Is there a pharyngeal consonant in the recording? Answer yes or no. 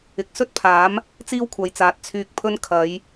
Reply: no